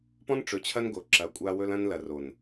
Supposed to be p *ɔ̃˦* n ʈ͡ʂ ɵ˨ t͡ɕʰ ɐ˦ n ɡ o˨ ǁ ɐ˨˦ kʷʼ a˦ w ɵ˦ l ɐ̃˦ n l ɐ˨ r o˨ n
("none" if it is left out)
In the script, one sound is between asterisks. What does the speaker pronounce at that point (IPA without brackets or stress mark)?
ɔ̃˦